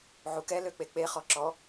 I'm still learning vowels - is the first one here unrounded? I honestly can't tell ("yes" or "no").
no